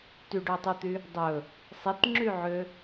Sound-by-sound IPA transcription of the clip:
t y ɖ ø tˤ ʉ t̪ y | dˤ ɵ | sˤ e t ŋ͡ǁ y ʕ ø

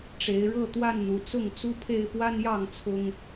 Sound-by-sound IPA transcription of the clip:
ʈ͡ʂ e˨˦ ɪ̯ ɻ ɤ˥˨ t̪ w a˥˨ n n̪ u˨˦ t͡s ʊ˥˨ ŋ t͡s u˦ pʰ e˦ ɪ̯ p w a˦ n j ɑ˥˨ ŋ t͡sʰ ʊ˦ ŋ

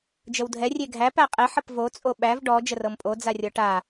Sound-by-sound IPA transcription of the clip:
d͡ʒ ə w dʱ ɛ rʲ e ɡʱ æ p æ qʼ e ħ ə p v o t͡sʼ o ɓ æ v ɖ ɔ d͡ʒ ə r ɤ m pʼ o d͡z a rʲ ɔ ʈ a

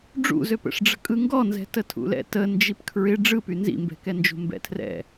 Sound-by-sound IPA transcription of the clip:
ɖ͡ʐ ṵ z ø p ə̰ ʂ ɖ͡ʐ ə̤ kʼ ɯ ŋ ɡ ɔ n z ɛ̤ t ə tʰ ṵ l ɛ̰ t ə n d͡ʒ i p kʰ ɹ ɪ ɖ͡ʐ ɯ p y n z ḭ m b ɛ̤ k ɛ n d͡ʒ ṳ m b ɛ̰ tʰ r ɛ̰

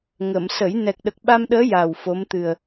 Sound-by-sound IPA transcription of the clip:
ŋ ə˨˩˨ m s ə˨˩˦ j n ɛ˨˩ k̚ ɗ ə˨˩ k̚ ɓ a˧ m ɗ əː˧˥ j a˨˩ w f o˧˥ m t̪ ɨ˨˩ ə̯

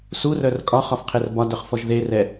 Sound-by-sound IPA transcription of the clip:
s u r œ r kʼ ɒ χ ɒ f qʰ e r b ɒ d œ χ f ɔ ʒ ð e r ɛ

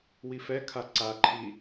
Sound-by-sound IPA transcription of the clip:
w i f ɛ kʰ a ǀ a ǃʰ i

